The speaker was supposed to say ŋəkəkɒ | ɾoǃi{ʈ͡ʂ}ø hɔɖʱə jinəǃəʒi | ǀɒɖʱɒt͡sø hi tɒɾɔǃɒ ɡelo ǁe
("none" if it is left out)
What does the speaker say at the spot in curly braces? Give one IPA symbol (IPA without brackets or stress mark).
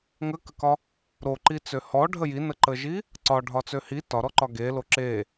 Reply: t͡s